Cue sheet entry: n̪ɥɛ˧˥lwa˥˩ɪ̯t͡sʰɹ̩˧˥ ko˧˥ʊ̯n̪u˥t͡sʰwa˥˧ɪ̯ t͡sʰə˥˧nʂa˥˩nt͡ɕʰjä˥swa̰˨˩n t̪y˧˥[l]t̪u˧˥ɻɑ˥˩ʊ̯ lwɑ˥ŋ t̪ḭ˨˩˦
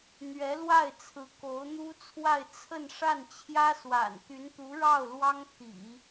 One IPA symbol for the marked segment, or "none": n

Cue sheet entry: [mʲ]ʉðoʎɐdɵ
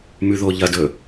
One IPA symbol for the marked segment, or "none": m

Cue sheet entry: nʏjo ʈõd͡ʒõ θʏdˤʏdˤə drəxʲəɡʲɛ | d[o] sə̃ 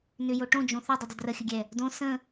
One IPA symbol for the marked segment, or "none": õ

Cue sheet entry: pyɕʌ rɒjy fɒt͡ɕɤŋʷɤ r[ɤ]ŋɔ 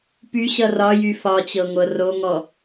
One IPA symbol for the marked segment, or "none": o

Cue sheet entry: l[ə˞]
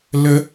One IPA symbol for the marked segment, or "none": ə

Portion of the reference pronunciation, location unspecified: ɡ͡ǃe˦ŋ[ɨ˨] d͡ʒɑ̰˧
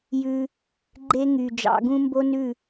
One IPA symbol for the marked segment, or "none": y˨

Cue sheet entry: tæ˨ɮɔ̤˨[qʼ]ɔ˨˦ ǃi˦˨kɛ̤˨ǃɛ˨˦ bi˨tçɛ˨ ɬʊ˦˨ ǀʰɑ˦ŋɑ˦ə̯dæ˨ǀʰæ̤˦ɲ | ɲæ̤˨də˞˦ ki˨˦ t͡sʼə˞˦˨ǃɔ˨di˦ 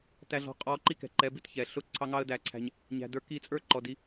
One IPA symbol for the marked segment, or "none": qʼ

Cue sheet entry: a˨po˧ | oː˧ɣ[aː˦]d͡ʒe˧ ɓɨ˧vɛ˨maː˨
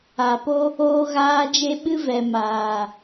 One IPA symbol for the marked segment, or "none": aː˧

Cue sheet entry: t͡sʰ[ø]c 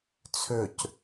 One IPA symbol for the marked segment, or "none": ø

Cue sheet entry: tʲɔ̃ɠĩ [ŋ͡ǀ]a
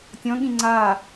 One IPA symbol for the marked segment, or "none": ŋ͡ǀ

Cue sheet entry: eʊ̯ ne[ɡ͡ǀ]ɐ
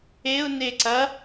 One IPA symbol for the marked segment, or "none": ǀ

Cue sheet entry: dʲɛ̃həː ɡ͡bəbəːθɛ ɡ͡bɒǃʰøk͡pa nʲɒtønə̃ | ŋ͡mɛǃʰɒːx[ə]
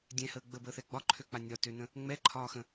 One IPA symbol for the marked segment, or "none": ə̃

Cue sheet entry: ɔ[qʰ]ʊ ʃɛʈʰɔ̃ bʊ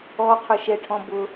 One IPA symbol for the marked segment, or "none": qʰ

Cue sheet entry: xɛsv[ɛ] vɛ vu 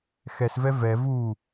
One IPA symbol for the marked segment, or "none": ɛ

